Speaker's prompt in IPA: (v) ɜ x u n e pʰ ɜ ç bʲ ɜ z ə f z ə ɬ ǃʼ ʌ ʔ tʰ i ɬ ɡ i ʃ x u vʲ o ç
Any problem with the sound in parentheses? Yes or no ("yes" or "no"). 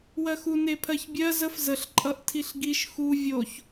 yes